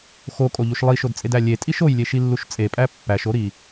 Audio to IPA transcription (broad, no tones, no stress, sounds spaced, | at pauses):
x o kʼ o ʎ u ʃ lˠ i ʃ o d t͡sʼ e d æ lʲ e tʼ i ʃ o j lʲ e ʃ i lː u ʃ t͡sʼ e pʼ æ pː æ ʃ o ɾ i